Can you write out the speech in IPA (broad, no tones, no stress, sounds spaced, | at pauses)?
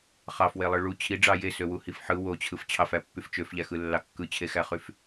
χ ɑ f w e lˠ ɯ ɭ u t͡ɕʰ i ɖ͡ʐ ɑ j e s ø w u h i f ħ ɯ w o t͡ɕʰ ɯ f t͡ɕʰ ɑ f æ pː y f t͡ʃ ø f ʎ æ x ɯ lː ɑ kː ɯ t͡ɕʰ e x æ χ y f